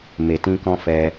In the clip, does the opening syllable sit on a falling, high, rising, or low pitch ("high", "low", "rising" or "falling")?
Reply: low